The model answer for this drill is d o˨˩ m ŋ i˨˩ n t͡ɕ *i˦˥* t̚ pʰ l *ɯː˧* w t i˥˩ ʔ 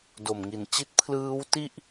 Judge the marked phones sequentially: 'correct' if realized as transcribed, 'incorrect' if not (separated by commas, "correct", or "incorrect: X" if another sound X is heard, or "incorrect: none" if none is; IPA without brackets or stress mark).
correct, incorrect: ɯː˦˥